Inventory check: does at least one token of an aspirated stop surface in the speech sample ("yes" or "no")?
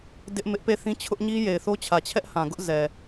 yes